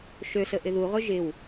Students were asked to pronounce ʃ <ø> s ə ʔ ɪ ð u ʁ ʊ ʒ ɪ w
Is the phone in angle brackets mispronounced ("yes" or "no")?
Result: no